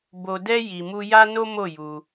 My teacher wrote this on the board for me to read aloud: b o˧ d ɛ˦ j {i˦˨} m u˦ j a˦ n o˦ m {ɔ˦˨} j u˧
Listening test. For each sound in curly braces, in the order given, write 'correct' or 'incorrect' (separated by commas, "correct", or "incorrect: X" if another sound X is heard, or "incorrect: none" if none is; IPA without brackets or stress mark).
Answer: incorrect: i˧, incorrect: o˦˨